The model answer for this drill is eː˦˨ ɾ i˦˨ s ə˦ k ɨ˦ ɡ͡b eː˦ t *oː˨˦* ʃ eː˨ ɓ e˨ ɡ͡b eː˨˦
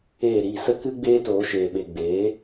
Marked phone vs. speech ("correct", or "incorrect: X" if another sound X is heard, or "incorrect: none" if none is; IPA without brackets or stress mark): correct